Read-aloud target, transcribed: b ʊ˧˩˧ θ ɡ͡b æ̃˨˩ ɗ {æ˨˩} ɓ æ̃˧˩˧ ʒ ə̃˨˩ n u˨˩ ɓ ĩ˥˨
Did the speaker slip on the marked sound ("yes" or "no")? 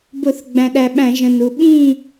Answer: no